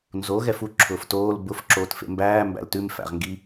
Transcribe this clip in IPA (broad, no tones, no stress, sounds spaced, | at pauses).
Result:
n z o ɣ ɛ f u ǁʰ ʊː f t oː l b ʊ f ǁ oː t f ḛ m b æː m b æ̰ l t ʉ m f æ̰ ʁ ŋ ɡ i